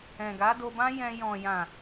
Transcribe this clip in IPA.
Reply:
ɛ̃˨ɡa˨˦do˧bã˦ jɛ̃˧ jɔ̃˨jã˨

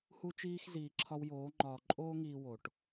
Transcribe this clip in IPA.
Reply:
hu˥t͡ʃiː˥x ziː˧ǁʰɒ˥wjoː˧˥ŋ͡ǃɒː˧ ǃʼoː˥ŋiː˧wo˩ʈ

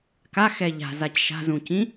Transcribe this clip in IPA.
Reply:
kaxɛ ʎa̤zac ʃa̤zũcĩ

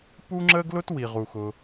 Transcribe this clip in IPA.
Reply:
pu˥ŋ͡ǁə˥ɡlʊ˥t wi˩ʁu˩xʊ˩

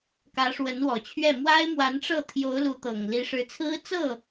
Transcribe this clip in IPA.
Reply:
kä˧˥ʂwə˧˥nwɔ˨˩t͡ɕʰɥɛ˥˩ mwa˥ɪ̯mwa˧˥nʈ͡ʂɤ˥˩ t̪ʰjo˧˥ʊ̯lu˧˥ t̪ɤ˨˩ŋli˧˥ ʂɻ̩˧˥t͡sʰɹ̩˥ t͡sɤ˥˩

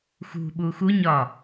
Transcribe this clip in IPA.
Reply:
xṳɓu xuɲɒ

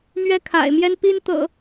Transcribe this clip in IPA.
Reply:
mɥɛ˦kʰa̰˨˩ɪ̯mjɛ˦n pi˦nt̪ɤ̰˨˩

